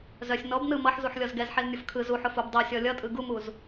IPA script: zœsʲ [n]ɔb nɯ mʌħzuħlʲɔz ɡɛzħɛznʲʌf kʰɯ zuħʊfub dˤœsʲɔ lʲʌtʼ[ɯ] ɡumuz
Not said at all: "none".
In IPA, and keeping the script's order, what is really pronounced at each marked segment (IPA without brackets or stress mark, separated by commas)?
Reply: n, ɯ